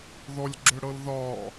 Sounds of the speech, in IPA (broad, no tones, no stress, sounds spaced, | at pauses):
ð ɔ lʲ ɡ͡ǁ ʏ ɽ ɤ l ð ɒ